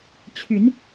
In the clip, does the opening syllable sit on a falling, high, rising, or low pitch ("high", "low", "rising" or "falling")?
rising